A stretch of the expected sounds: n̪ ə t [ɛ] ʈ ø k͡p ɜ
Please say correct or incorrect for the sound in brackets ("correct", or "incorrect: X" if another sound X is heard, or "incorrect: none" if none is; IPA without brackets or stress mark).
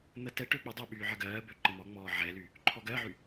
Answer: correct